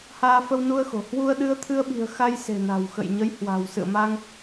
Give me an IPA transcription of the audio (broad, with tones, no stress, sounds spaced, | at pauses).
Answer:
h aː˧ f ə˧ w n u˧ ə̯ x o̤˨˩ h w u˧ ə̯ ɗ ɨ˧ ə̯ t̪ʰ ɨ˧ ə̯ ɓ i̤˨˩ ə̯ x a˧ j s e̤˨˩ n a̤˨˩ w x ə̰˧˨ j ɲ ə˨˦ j h w a̤˨˩ w s ɨ̰˧˨ ə̯ m a˧ ŋ